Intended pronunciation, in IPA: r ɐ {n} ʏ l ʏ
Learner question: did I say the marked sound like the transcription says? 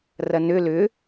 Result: yes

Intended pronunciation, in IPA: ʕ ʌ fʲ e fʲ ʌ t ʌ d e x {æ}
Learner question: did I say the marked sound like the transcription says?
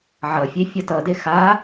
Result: no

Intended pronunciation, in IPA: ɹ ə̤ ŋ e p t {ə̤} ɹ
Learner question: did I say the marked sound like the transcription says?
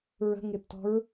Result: no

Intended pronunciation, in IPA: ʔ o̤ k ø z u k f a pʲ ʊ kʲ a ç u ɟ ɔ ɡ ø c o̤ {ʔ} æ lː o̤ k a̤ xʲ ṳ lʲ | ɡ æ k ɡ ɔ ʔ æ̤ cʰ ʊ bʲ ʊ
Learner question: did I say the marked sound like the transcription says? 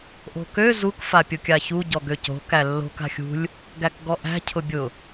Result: no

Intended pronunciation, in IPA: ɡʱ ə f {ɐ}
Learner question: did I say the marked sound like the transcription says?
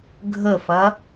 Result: yes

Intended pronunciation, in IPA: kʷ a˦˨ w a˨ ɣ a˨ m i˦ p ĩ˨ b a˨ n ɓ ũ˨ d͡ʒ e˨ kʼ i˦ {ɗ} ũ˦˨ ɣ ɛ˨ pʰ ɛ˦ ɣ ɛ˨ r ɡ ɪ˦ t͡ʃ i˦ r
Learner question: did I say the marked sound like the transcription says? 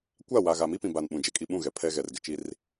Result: no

